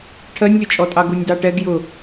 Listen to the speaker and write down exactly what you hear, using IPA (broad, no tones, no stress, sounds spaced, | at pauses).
ʈʰ ɜ nʲ lʲ ʊ t͡ʃʼ ɔ tʼ ɑ ɡ u nʲ d ɑ ʈ ɛ ɡ j ʊ